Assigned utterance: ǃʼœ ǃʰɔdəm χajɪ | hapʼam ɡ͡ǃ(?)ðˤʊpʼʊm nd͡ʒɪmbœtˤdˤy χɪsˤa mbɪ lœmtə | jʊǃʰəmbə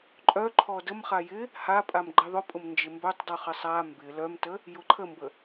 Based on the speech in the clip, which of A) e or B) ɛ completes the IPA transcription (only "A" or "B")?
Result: A